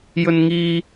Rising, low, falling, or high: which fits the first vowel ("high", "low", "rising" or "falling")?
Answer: high